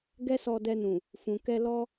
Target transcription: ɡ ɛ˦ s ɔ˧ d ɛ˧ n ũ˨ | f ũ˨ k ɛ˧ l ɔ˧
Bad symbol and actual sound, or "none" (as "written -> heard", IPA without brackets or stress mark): none